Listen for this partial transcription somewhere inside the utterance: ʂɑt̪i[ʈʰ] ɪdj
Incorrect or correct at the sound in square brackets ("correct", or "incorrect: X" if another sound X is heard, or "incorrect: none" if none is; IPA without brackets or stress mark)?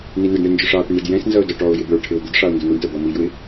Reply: incorrect: ɳ